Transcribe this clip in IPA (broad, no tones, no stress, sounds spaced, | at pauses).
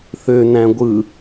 θ ø n æ̃ ɡʷ ɯ